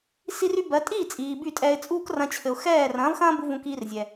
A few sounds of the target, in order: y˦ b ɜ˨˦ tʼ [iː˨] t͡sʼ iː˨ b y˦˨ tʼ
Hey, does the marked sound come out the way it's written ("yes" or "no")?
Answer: no